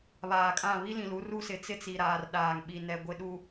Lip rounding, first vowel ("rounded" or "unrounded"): unrounded